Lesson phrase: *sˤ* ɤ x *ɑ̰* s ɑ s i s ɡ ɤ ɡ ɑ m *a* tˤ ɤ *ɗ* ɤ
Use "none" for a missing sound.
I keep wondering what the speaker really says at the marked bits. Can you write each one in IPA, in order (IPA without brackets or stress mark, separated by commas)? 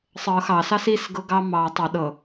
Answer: sˤ, ɑ, ɑ, ɗ